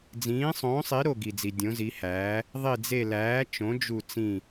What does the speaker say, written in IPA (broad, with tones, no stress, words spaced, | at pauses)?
d͡zĩː˩˥sˤõː˩˥sˤi˩˥ ɾo˧˩ɡi˩d͡zi˩ dʲõ˩˥zi˩˥hæː˩˥ | ðˤi˧˩d͡ze˧˩læː˩˥ t͡ʃõ˩˥d͡ʒu˧˩t͡sĩ˧˩